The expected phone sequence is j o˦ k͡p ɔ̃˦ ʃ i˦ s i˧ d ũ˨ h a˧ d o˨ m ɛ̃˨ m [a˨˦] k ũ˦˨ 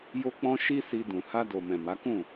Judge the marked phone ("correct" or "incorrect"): correct